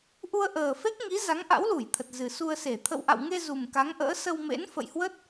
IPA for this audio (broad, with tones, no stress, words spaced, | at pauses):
ʔu˧ə̯ʔəː˨˩fe˦˥k̚ ŋi˨˦ za˨˦ŋʔa̰˧˥wlu˧˩jt̪ʰə˨˩t̚ zɨ˨˩su˧ə̯se˧˩ t̪ʰə̰˧˨wʔa̰˧˨wŋe˧ zu˨˩mka˨˦ŋʔə̰ː˧˥ sə˧wmḛ˧˥n fə̰˧˨jhwə˦˥t̚